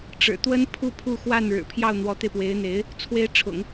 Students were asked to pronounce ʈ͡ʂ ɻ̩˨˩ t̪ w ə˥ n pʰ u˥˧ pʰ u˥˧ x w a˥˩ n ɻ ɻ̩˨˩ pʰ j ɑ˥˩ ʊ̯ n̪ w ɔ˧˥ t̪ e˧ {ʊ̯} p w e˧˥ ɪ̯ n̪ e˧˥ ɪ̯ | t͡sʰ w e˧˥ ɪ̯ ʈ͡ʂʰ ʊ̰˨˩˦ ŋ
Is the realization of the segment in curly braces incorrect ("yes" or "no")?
yes